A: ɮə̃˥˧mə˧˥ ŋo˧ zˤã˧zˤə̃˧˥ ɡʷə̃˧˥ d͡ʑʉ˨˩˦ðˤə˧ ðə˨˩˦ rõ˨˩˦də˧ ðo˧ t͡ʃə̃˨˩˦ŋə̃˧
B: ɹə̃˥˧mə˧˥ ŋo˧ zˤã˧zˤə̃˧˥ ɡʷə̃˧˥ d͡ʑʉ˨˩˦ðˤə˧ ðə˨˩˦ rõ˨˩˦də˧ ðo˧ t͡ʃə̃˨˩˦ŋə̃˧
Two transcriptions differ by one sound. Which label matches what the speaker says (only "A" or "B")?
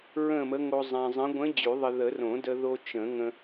B